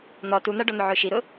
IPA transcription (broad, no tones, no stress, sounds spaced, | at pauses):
n̪ ɔ t u n̪ a ɖ ɔ n̪ ʊ ʕ ʊː ʃ i ɾ ʊ